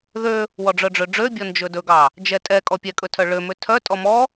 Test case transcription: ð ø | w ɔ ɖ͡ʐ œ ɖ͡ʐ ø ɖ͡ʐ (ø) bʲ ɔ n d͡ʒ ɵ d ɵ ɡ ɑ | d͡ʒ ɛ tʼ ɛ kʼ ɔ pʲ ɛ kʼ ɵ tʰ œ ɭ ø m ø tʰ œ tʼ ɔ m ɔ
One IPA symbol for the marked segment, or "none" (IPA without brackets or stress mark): ø